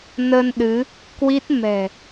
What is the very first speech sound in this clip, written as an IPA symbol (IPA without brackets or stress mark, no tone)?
n